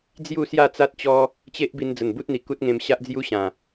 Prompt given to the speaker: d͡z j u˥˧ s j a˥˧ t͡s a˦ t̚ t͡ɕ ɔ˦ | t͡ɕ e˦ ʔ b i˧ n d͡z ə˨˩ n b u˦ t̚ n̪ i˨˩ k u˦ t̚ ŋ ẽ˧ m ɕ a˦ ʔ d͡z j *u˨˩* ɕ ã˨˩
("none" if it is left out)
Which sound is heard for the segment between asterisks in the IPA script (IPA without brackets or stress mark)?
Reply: u˦